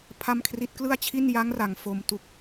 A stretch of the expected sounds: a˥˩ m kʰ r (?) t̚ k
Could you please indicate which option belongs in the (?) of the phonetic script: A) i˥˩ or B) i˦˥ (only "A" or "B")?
B